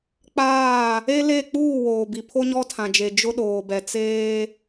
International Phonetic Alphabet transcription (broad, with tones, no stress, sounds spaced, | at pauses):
k͡p aː˦˨ | e˦ l e˦˨ k͡p uː˦˨ w oː˨ b i˨ pʰ o˦ ɲ ɔ˦ tʰ ã˨ d͡ʒ e˨ d͡ʒ ʊ˦ ɗ oː˨ b ɛ˨ t͡s eː˦